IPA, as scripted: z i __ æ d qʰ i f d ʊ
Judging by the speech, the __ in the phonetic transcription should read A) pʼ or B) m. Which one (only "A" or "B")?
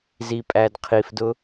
A